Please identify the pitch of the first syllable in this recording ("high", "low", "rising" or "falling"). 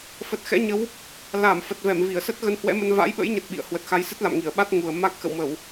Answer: low